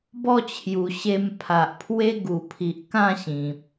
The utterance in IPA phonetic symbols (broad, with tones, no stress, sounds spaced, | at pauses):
b ɔ˥˧ t͡ɕʰ j u˨˩ ɕ e˧ m pʰ a˨ ʔ pʰ w e˦ ɡ u˨˩ pʰ i˨ ʔ k ã˥˧ ɕ ĩ˨ p̚